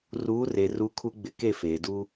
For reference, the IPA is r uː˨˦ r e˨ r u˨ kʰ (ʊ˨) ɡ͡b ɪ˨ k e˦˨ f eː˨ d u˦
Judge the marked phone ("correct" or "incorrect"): incorrect